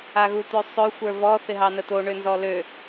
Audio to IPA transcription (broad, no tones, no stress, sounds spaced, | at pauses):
a ɣ u t̪ ø sˤ ø xʷ ə˞ v ɔ θ ɪ ɦ ɑ n ə t̪ o ɳ ø n z ɔ l ø